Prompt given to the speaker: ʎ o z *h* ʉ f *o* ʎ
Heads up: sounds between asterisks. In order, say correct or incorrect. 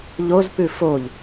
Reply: incorrect: p, correct

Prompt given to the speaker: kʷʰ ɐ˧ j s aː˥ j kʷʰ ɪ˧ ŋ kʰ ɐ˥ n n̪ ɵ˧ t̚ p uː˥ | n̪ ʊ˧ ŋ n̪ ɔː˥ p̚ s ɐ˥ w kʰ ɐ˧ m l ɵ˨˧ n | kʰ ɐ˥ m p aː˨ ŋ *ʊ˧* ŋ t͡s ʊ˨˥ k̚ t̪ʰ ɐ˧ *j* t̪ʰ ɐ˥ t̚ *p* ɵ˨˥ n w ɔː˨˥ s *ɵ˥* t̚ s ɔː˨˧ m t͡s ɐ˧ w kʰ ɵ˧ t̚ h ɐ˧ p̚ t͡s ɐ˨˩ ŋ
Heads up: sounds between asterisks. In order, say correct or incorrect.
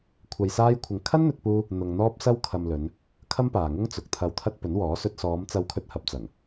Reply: incorrect: ʊ˥, incorrect: w, correct, incorrect: ɵ˧

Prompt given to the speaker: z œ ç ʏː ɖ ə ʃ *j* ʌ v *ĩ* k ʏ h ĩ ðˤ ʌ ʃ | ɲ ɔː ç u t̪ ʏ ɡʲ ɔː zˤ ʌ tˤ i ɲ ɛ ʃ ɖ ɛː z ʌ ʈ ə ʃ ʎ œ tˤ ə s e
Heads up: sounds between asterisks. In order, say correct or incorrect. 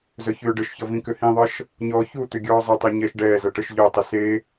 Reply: incorrect: ç, correct

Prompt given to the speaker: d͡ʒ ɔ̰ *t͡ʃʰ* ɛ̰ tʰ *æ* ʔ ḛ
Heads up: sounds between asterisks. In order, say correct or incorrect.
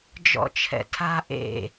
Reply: correct, incorrect: a

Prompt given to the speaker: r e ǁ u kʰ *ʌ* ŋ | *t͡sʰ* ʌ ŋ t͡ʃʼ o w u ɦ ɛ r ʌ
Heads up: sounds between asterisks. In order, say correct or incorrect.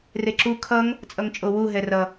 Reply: correct, incorrect: t͡sʼ

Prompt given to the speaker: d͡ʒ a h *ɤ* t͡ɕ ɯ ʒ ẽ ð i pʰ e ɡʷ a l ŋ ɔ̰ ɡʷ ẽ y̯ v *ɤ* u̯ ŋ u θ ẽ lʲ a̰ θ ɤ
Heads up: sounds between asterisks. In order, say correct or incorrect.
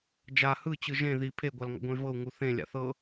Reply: incorrect: ɯ, correct

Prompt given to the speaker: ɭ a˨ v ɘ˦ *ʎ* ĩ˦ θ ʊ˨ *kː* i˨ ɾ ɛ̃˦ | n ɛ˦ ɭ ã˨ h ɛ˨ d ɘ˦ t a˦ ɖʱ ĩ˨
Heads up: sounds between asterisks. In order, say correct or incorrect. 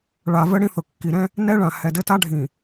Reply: incorrect: ɽ, correct

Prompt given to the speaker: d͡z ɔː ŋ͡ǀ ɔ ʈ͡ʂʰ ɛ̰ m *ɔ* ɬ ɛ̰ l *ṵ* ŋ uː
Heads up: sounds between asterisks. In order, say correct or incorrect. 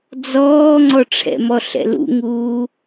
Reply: correct, correct

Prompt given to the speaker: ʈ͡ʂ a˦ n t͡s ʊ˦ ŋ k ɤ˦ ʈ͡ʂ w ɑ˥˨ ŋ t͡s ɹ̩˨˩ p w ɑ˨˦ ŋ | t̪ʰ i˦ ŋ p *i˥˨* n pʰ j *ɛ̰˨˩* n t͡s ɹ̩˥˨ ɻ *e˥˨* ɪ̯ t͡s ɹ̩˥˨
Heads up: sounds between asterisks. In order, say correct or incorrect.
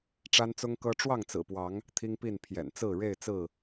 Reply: correct, correct, correct

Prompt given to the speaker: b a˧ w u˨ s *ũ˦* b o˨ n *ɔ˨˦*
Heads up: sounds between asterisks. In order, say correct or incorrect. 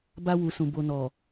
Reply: incorrect: ũ˨, incorrect: ɔ˨

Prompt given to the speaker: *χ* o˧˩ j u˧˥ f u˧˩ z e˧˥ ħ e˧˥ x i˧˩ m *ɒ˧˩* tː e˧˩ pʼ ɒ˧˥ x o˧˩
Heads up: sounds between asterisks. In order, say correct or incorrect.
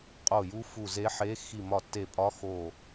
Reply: incorrect: qʼ, correct

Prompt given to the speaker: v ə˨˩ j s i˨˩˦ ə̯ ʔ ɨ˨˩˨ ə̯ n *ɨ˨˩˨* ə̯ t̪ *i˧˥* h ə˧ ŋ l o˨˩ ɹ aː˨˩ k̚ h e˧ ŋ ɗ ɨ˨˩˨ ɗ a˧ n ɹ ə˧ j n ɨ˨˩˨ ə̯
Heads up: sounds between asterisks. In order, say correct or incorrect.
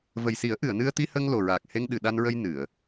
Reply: incorrect: ɨ˧, incorrect: i˧

